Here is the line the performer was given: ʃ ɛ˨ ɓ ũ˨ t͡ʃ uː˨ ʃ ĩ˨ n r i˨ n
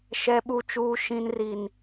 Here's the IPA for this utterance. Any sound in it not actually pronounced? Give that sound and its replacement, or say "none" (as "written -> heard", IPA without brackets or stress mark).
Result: ũ˨ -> u˨